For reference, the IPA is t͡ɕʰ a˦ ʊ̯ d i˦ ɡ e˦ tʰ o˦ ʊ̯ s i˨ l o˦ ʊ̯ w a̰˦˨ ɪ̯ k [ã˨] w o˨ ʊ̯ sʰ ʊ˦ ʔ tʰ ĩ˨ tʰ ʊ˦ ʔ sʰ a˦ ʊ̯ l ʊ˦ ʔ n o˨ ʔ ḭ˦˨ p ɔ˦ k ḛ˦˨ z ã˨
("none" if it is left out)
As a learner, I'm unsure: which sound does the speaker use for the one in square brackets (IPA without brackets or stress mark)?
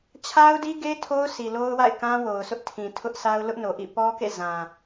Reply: ã˦